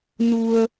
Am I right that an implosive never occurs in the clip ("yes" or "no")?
yes